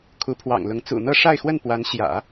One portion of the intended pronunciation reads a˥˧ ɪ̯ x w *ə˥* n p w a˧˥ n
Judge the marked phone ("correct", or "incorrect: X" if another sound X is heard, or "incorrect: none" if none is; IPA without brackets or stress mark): incorrect: ə˥˩